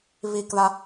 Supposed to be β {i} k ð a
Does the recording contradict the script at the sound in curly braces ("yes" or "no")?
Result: no